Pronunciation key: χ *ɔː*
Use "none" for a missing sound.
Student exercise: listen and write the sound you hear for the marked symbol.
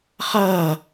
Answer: ʌː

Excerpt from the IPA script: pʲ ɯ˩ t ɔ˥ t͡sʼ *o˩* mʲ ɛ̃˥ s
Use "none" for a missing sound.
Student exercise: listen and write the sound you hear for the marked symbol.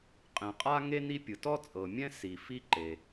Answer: ɤ˩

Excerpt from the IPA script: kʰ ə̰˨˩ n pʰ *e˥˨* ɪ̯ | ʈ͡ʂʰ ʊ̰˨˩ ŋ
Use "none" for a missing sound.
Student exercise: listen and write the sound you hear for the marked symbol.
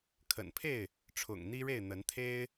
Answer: e˥˨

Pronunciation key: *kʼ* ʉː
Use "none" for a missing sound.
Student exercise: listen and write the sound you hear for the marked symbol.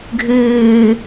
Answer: ɡʱ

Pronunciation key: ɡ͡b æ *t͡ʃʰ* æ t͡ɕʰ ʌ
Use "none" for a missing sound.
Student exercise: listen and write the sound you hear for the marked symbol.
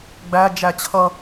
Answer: d͡ʒ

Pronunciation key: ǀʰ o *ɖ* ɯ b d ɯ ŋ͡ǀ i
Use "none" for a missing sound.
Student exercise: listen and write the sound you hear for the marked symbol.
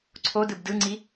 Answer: d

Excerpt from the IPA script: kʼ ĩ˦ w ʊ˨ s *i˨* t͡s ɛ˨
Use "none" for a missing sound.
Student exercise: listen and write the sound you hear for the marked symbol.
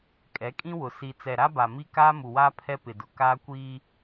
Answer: i˨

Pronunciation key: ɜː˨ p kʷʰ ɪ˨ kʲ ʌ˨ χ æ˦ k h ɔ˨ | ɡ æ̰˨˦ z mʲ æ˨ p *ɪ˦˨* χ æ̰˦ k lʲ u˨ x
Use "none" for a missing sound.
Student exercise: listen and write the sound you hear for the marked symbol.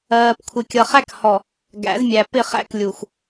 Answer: ɪ˦˨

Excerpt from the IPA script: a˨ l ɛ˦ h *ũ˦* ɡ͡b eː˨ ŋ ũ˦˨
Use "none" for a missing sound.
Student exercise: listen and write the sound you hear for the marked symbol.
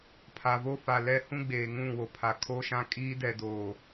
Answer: ũ˦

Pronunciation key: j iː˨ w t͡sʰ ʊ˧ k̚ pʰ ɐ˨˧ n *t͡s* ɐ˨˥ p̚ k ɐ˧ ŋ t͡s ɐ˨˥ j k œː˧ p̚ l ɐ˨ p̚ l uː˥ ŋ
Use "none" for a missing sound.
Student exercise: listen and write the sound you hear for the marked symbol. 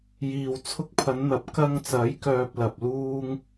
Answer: n̪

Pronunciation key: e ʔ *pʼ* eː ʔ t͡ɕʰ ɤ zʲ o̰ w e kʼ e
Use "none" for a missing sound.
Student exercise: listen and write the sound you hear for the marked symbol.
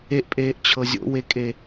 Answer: pʼ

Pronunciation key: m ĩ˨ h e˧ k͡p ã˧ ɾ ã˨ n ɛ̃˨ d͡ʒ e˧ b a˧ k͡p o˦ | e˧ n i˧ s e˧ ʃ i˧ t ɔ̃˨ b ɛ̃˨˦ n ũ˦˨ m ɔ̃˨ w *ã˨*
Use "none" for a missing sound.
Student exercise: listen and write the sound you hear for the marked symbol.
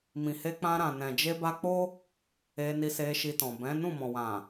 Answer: ã˨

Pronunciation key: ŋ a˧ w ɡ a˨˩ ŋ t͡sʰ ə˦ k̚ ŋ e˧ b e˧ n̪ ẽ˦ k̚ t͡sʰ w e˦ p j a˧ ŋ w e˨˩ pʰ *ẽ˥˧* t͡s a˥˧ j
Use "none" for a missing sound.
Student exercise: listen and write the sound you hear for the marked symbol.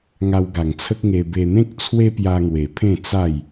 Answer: ẽ˥˧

